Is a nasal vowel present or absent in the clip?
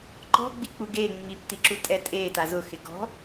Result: absent